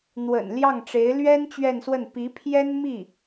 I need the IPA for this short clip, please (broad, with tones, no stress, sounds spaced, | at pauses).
n̪ w ə̰˨˩ n l j ɑ˥˩ ŋ ʈ͡ʂ e˧˥ ɪ̯ l ɥ ɛ˥ n t͡ɕ ɥ ɛ˥˧ n s w ə˥˩ n p i˧˥ pʰ j ɛ˥ n m i˥˩